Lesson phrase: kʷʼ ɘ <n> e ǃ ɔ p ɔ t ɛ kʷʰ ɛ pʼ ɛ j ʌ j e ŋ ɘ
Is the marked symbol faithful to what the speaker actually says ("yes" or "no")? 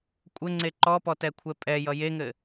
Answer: no